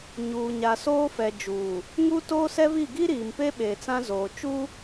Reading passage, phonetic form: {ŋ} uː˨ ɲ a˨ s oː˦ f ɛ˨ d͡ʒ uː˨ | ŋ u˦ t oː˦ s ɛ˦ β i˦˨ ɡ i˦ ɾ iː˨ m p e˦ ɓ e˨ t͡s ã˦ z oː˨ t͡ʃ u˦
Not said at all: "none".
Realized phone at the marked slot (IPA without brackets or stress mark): ɲ